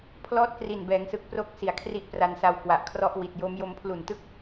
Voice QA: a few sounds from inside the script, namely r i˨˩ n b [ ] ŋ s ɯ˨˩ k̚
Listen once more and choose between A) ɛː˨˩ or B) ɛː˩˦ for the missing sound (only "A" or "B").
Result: B